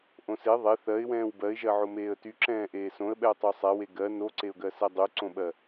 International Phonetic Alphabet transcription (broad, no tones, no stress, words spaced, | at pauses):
ʔõse ðˤe θɜɪ̯wɛ̃ːw bɜɪ̯ʒɜʕo meːə̯tyǁɛ̃ː ʔeːsõə̯ɓɛʊ̯ tˤosˤɛwe ɡɜ noǀeʊ̯ɡɜ sɛdˤyǀõɓɜ